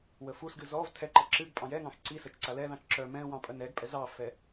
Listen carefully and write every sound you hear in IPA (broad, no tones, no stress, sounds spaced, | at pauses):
w ə f u s ɡ ɨ z ɔ v tʰ ɛ ǃ ə ǁ ɨ ɡ pʼ ɑ̃ j ɛ ŋ ɑ̃ x ǀ i s ə t͡ʃ ǀ a l ɛ ð ɑ̃ t͡ʃ ǁ œ m ɛ̃ w ɑ̃ pʼ œ n ɛ ɡ pʼ ɛ z ɑ f ɛ